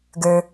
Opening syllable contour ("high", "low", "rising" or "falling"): low